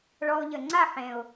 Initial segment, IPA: ɭ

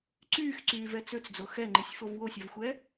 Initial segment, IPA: ǀ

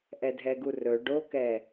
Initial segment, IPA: ʔ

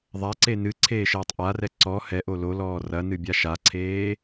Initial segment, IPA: ðˤ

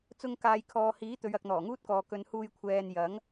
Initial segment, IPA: t͡s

